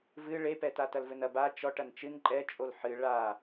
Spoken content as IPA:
v ɨ ɭ e p ɛ t a t ɐ l v ɘ n ɐ b a t͡ʃ ɔ ʈ ɐ n t͡ʃ ɨ n ǃʼ ɛ t͡ʃʼ o l ħ ɨ ɭ a

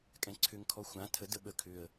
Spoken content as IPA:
kʼ ɛ̃ ǀʰ ʏ ŋ kʰ ɔ xʷ ã tʰ ə d ə ɓ ə kʰ ʏ ə̯

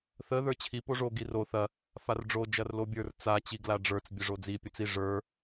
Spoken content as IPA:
θ ə ð ə˞ t͡ɕʰ i p o ʐ o ɡ i r o θ ɐ | f a r ɖ͡ʐ o d͡ʒ ɐ r l o bʲ ə˞ r t͡s a t͡ɕ i ɡ l a ɖ͡ʐ ə˞ t͡s bʲ ə ʐ o d͡z i pʲ o t͡s i ʐ ə˞

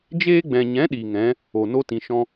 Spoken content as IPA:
d͡ʒ eː˧ ɡ͡b ɛ̃˨ ɲ ɛ̃˨˦ ɗ iː˨ ŋ ɛ̃˨˦ | o˨ n o˦ t ĩ˨ ʃ ɔ̃˦

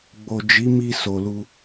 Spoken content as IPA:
ɡ͡b o˨ d͡ʒ i˨˦ m i˧ s o˨ l u˧

